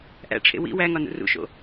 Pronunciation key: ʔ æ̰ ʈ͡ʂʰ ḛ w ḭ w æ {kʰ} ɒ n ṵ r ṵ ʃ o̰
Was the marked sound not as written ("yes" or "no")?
yes